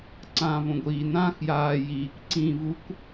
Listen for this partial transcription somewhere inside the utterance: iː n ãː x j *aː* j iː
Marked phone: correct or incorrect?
correct